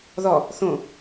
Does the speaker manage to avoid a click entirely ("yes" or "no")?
yes